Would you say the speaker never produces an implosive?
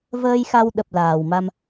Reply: no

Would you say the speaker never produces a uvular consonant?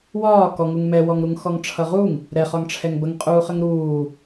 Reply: no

